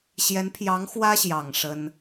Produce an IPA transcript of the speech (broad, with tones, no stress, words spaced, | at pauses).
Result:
ɕjɛ˧˥npʰjɑ˧˥ŋ xwä˥ɕjɑ˨˩ŋ ʂə˥n